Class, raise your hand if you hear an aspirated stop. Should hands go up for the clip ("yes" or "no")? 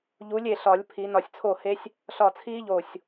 yes